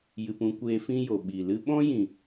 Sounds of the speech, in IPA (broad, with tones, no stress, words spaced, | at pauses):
jɨ˧pũ˦kʷeː˦ fĩ˦jo˨ ɓi˨ lɨ˧ɓɔ̃˦jĩ˨